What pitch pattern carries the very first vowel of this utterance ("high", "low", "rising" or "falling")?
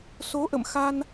rising